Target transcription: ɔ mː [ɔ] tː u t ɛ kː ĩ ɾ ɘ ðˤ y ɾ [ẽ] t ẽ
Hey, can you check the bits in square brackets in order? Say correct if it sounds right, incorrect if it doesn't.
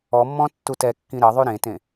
incorrect: ɔ̃, correct

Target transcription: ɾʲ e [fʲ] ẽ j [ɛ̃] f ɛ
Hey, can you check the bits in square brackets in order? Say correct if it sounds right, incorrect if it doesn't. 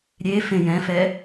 incorrect: f, correct

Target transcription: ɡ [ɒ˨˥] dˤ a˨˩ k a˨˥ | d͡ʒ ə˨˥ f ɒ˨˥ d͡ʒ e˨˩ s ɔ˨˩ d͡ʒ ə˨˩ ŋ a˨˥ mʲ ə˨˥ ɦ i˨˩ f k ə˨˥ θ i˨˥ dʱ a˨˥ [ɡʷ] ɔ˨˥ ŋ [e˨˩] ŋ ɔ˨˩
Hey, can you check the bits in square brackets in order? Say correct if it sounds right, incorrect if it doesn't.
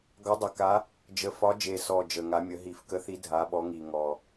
correct, incorrect: ɓ, incorrect: i˨˩

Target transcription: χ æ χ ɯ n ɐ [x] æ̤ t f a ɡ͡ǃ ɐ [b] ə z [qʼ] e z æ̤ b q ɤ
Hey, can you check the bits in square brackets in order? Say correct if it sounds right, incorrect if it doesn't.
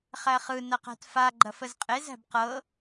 incorrect: q, incorrect: f, correct

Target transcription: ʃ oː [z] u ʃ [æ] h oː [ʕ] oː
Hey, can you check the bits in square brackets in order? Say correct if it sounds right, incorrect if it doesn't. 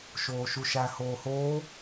incorrect: ʃ, correct, incorrect: h

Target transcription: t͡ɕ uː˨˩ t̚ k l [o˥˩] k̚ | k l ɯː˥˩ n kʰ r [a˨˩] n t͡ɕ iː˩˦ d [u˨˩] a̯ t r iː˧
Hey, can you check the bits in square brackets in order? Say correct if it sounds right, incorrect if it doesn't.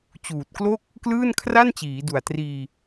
correct, incorrect: a˥˩, correct

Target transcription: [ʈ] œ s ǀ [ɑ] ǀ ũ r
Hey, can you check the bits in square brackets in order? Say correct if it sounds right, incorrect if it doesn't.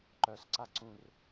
incorrect: ǃ, incorrect: a

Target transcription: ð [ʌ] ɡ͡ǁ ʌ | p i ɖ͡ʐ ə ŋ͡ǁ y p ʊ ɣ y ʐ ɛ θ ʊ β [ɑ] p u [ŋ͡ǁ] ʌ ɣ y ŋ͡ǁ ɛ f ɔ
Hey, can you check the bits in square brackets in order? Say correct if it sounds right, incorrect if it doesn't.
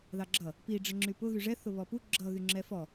incorrect: ɑ, incorrect: ɔ, incorrect: ɡ͡ǁ

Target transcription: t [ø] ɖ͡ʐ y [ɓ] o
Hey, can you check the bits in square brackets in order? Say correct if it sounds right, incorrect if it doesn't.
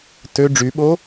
correct, correct

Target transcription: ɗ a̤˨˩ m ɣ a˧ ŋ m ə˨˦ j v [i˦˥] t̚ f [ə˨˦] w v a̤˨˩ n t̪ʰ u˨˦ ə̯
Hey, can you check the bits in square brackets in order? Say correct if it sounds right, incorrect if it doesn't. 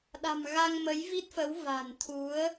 correct, correct

